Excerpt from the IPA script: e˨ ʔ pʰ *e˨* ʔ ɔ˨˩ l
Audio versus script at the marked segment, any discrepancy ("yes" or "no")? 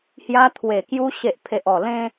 no